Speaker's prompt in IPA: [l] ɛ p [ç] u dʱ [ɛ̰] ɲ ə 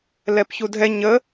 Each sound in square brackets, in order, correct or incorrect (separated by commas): correct, correct, incorrect